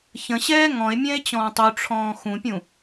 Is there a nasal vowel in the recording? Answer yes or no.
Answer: yes